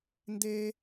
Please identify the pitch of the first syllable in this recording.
high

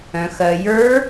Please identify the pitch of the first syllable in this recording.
low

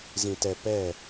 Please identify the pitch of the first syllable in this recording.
low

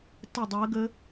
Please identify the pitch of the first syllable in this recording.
falling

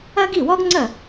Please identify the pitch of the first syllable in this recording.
high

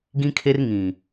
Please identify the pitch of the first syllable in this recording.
high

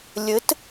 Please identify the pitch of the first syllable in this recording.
rising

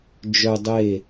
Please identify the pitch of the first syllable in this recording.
low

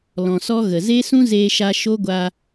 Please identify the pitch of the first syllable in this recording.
low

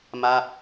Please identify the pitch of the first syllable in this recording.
falling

